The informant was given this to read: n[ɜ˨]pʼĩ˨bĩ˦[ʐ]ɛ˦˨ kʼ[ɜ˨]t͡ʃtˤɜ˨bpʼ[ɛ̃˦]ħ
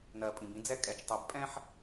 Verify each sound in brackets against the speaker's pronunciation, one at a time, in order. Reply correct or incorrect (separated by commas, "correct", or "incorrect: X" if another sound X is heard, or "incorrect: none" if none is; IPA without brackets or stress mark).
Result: correct, incorrect: d͡z, incorrect: ɛ˨, correct